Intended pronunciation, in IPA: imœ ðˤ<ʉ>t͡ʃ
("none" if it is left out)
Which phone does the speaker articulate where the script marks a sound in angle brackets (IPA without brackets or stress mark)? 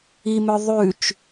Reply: ʉ